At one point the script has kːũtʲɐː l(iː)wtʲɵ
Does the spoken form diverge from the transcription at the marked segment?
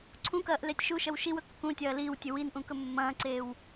no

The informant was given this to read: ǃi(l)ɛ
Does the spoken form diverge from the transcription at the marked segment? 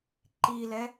no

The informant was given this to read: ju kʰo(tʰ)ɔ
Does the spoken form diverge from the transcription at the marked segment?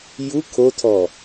no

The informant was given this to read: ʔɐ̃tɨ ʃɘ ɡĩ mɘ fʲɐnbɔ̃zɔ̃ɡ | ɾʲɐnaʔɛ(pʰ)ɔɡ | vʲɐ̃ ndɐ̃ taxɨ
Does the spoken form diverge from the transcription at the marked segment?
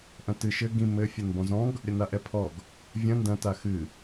no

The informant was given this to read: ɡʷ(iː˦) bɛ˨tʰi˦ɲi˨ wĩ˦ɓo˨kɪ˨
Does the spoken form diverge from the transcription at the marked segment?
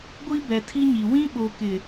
yes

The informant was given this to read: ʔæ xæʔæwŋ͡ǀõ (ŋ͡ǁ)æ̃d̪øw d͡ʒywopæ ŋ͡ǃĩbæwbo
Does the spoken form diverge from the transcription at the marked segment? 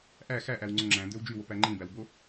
no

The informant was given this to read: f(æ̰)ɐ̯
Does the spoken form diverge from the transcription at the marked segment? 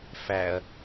yes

